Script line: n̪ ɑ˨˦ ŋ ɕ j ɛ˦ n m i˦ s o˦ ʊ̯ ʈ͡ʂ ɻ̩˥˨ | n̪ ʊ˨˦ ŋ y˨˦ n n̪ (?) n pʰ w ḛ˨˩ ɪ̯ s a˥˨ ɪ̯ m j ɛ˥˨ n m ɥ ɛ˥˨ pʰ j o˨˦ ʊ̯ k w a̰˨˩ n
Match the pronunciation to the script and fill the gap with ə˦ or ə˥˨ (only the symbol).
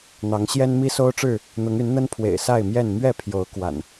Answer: ə˦